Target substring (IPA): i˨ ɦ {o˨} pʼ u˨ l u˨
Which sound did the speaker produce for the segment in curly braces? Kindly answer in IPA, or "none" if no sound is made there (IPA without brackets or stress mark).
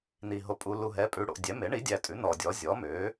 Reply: o˨